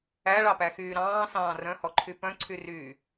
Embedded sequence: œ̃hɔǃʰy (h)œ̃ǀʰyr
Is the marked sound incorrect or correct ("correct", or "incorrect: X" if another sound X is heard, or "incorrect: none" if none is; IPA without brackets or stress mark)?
incorrect: p